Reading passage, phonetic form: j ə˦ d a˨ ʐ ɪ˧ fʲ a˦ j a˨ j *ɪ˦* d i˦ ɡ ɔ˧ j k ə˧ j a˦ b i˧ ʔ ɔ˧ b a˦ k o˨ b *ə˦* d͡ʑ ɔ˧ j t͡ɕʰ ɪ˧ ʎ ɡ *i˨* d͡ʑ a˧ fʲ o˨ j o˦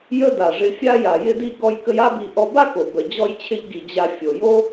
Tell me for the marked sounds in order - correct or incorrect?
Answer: correct, incorrect: ə˨, correct

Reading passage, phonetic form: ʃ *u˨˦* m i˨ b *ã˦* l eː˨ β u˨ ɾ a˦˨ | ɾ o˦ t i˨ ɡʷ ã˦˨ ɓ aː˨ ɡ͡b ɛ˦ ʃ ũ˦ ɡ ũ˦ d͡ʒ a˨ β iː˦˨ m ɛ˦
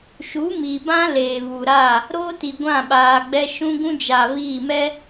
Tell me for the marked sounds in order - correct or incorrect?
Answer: correct, correct

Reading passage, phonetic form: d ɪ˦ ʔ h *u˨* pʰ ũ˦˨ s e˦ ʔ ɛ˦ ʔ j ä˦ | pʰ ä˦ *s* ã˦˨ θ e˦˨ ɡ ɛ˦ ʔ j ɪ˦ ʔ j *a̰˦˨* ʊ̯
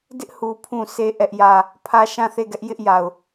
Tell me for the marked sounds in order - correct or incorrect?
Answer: correct, incorrect: ʃ, incorrect: a˨

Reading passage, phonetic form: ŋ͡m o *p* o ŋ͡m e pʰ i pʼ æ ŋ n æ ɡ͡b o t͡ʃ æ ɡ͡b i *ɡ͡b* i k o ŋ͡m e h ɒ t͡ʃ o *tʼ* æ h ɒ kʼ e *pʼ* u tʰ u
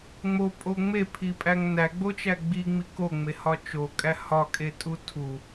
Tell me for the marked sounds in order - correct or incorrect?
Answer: incorrect: pʼ, incorrect: ŋ͡m, incorrect: kʼ, incorrect: tʼ

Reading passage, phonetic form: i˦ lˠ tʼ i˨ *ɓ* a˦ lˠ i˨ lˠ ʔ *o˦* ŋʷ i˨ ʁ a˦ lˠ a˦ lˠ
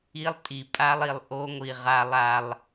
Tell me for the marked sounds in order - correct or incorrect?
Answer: incorrect: pʼ, correct

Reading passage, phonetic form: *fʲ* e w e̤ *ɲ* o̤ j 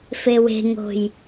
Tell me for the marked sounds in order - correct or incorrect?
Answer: incorrect: f, incorrect: ŋ

